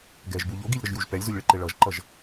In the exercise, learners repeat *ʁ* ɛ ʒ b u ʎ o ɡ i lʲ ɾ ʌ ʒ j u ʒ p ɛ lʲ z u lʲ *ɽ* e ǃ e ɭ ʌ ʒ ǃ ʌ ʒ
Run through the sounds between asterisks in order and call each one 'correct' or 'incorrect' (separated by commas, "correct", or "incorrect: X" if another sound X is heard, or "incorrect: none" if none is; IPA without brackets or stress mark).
incorrect: ɡ, incorrect: ɭ